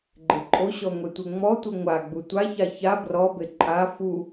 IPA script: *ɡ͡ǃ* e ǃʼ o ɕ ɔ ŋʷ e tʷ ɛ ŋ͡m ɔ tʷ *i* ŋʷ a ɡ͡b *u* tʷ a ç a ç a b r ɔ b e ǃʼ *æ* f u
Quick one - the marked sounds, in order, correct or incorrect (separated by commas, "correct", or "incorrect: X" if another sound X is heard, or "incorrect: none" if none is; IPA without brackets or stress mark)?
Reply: correct, correct, correct, incorrect: a